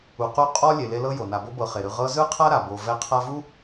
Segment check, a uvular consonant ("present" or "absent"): present